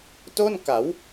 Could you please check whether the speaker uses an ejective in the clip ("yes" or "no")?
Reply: no